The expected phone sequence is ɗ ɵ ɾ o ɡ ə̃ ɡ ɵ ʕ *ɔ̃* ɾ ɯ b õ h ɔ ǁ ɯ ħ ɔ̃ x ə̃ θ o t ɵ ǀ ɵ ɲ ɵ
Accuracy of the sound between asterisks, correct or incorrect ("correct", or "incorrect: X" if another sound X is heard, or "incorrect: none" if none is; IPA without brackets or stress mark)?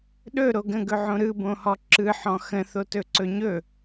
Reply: incorrect: õ